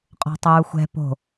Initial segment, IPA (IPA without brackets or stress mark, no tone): qʼ